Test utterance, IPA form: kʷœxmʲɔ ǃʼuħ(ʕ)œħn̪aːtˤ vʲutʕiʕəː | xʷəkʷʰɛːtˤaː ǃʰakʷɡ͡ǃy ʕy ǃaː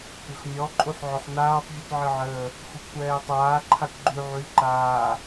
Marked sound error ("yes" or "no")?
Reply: no